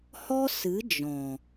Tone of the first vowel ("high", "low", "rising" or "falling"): high